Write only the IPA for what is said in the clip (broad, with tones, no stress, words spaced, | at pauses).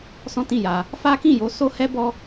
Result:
sɔ̃˦tĩ˦˨ja˧ | fa˦kĩ˦˨jo˧ so˦ hɛ˦bɔ˦